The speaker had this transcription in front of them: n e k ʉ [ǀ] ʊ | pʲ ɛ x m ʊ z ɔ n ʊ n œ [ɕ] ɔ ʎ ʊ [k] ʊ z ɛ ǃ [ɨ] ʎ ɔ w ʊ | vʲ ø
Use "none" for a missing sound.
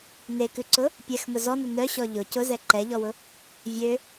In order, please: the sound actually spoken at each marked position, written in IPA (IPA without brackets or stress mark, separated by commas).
ǀ, ɕ, c, ɛ